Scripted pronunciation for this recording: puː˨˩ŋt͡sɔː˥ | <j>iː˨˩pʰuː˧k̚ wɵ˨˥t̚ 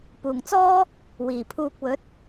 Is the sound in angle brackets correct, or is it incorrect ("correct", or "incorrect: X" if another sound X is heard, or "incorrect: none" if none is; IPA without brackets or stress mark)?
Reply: incorrect: w